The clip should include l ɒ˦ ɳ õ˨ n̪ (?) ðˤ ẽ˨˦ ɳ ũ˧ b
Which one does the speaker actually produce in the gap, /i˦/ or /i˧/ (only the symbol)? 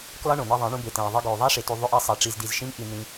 i˧